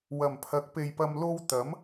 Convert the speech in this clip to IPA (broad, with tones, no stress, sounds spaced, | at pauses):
w ɐ˨˩ m pʰ ɐ˨˥ k̚ p e˨ j p ɐ˧ m l o˥ w t̪ ɐ˨˥ m